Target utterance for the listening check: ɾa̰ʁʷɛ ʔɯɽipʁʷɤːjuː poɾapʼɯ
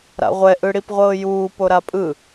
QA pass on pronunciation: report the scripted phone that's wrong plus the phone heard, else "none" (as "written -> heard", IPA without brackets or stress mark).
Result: none